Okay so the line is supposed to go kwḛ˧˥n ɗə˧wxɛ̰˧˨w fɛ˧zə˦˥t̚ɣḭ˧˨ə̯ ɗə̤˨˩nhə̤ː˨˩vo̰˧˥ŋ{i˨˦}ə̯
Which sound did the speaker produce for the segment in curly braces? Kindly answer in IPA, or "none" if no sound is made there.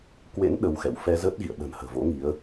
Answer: i˨˦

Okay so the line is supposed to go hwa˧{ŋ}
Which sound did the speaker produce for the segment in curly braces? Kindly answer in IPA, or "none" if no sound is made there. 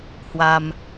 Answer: m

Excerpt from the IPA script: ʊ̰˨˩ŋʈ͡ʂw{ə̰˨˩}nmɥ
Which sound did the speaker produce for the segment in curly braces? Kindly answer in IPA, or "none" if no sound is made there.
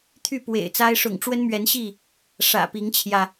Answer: ə˦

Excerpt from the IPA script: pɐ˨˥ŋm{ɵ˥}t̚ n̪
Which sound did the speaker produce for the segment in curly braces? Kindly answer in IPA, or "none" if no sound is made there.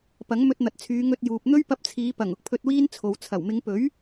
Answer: ɵ˧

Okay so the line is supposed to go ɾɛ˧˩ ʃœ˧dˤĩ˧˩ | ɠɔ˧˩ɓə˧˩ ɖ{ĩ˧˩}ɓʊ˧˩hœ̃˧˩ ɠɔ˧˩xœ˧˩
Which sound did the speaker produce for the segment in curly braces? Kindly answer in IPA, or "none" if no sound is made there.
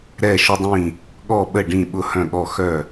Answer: ĩ˧˩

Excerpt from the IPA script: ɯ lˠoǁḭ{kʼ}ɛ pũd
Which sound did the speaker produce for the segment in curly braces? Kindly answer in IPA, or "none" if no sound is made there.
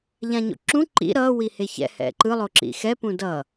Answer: x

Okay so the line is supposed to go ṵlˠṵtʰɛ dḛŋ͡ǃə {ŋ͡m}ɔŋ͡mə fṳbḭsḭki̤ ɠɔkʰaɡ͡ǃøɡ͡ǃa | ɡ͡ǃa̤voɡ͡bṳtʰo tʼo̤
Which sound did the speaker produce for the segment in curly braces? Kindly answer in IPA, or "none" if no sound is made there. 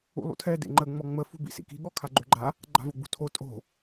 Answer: ŋ͡m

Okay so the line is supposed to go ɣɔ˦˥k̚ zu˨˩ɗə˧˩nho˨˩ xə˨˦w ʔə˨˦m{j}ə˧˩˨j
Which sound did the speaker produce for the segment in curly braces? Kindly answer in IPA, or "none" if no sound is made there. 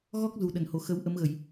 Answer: ɣ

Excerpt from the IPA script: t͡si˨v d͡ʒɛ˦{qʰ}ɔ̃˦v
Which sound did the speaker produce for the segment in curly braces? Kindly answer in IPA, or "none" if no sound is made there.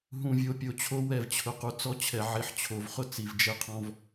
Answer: qʰ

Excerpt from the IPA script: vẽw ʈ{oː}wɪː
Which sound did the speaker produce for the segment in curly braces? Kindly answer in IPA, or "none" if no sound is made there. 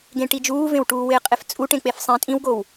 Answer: uː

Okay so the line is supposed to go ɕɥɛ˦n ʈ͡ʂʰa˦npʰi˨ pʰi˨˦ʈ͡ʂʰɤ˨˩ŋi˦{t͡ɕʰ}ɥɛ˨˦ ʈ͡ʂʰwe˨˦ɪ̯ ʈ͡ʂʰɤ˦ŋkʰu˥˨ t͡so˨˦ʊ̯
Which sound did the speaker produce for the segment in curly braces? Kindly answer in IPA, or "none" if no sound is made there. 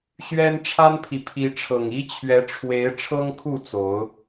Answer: t͡ɕʰ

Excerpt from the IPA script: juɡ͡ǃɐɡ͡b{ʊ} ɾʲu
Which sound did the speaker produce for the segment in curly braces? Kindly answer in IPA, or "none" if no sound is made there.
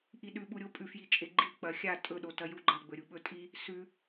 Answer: ɵ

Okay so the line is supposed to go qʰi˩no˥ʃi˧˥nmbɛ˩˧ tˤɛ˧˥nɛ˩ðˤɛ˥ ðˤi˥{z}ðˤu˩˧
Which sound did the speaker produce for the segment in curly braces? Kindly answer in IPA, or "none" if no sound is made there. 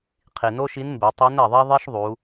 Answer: ʃ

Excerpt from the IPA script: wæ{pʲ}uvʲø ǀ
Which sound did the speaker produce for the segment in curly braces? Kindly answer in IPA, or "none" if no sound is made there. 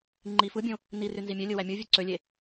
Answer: mʲ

